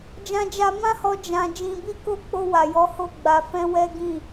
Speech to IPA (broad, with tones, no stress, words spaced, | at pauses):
d͡ʒã˧d͡ʒa˧mã˦hɔ˧ d͡ʒã˧ d͡ʒĩ˧bi˦ko˦ k͡po˧wa˨jɔ˨˦ ho˦˨ɡ͡ba˧fɛ̃˦wɛ˦ ɡĩ˦˨